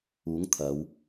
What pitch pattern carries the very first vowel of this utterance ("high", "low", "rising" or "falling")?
rising